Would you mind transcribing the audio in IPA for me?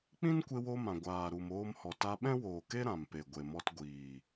k͡p ĩ˦ n kʷ e˧ w o˧ m ã˨ ɡʷ aː˨ ɾ u˨ m oː˧ m h ɔ˨ t a˧ ɓ ɛ̃˦ w oː˨ k e˦ ɾ ã˨ m p e˨ ɡʷ e˨ m ɔ˧ t ɡʷ iː˨

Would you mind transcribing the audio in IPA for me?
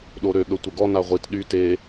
ɗ o ɾ ø ɠ ə tʷ ə ɡ ɔ n a ʁʷ i t ɗ y t e

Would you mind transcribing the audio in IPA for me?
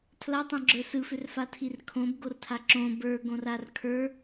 tʰ l a tˤ õ ɡ͡ǁ ə˞ s ɯ f ʏ r f a tʰ i r kʰ õ b ɡ o r tʰ a ǁ õ b ə˞ ɡ õ r a r kʰ ə˞

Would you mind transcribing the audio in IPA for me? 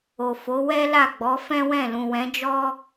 o˨ f o˨˦ w ɛ˦ l a˦˨ ɡ͡b ɔ˨˦ f ɛ̃˦ w ɛ̃˦˨ l ũ˨ w ɛ̃˨˦ d͡ʒ ɔ˦

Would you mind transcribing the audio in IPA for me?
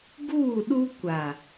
ɡ uː˦˨ ɗ u˦ kʷ a˨

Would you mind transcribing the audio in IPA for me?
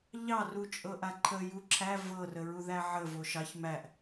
ʎ ɑ r u t͡ʃʼ ɤ ʔ a ǃʰ ə j u ǁʰ æ v ɤ r ə ɹ u ð æ ʕ ə v o ʃ ɑ ç m æ ʔ

